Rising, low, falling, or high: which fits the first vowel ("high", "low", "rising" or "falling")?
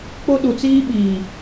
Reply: high